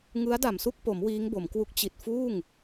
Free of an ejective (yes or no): yes